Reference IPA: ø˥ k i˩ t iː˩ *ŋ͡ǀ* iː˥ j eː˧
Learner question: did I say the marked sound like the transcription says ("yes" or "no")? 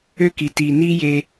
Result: no